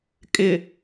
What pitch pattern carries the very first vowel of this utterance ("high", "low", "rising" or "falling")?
low